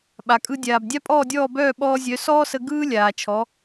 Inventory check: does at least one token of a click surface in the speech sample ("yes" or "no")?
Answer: no